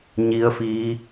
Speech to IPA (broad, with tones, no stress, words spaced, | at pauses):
ɲi˧˥ə̯fiː˧˥